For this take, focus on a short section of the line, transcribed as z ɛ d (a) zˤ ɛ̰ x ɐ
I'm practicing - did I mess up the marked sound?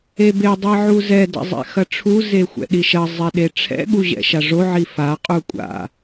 yes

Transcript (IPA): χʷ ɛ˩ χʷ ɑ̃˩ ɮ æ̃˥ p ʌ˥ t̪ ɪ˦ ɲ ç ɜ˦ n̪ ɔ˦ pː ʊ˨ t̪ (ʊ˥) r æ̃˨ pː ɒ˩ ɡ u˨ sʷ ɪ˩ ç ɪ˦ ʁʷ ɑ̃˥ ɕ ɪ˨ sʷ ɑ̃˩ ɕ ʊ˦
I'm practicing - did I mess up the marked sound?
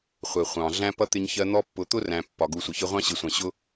no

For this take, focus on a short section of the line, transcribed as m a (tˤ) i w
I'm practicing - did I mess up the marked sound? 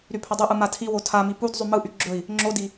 yes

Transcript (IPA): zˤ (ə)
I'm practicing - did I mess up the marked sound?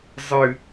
yes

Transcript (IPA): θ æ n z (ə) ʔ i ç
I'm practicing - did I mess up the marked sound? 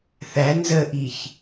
no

